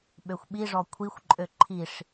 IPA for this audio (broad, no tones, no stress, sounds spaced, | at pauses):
ɓ ø xʷ ɓ i ʐ ɔ kʷʰ i xʷ ǃʼ ø ǃʰ i ʂ